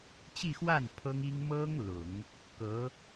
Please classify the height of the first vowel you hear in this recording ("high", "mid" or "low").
high